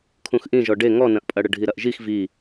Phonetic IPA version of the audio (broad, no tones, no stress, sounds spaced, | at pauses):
kʰ ũ x ʔ ĩ ʒ ɔ ɖ e ŋ ɔ n ɐ̃ ʔ pʼ ɐ ɽ ə ɖʱ i ɾ ɐ ʔ ʒ i x v i